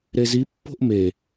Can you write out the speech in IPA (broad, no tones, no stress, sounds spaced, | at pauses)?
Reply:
ɾ e z i pː o̤ ʔ m e